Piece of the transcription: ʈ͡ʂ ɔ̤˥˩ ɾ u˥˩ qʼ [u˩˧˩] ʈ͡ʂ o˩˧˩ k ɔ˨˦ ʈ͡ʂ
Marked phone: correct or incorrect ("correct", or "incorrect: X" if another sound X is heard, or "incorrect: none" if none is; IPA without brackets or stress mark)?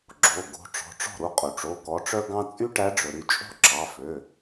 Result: incorrect: u˩